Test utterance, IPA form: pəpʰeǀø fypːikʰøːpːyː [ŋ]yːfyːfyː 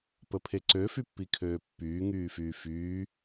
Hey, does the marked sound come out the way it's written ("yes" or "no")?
yes